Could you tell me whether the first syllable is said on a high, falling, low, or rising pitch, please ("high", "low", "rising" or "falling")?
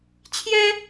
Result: high